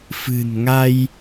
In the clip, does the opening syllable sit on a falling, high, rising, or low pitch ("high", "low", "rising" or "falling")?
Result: low